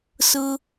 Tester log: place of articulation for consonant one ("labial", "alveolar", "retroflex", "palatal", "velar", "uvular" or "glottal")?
alveolar